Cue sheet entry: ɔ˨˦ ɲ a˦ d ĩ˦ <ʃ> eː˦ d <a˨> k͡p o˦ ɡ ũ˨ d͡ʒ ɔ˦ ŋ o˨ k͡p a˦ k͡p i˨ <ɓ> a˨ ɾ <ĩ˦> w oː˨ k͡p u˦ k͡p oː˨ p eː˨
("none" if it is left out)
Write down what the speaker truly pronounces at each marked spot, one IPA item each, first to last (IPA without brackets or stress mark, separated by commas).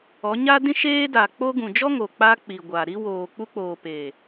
ʃ, a˨, ɡʷ, i˦